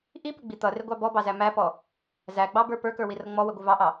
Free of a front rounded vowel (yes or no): yes